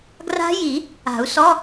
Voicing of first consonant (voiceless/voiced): voiced